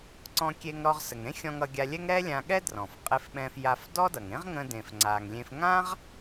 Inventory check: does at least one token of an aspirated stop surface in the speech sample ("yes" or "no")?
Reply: no